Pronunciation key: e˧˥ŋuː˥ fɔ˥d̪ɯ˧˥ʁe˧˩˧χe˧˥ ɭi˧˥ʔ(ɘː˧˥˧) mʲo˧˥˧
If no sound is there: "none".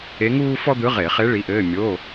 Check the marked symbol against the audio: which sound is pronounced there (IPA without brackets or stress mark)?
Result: ɘː˧˥˧